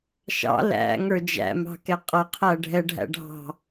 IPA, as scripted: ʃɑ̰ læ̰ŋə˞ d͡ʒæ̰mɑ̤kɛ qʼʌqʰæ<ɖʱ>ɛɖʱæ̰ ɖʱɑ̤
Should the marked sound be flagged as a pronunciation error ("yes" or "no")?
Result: no